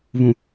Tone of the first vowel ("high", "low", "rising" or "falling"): low